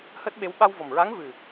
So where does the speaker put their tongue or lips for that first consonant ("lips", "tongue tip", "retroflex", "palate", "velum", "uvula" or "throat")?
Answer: throat